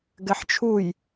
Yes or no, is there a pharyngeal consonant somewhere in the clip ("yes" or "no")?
yes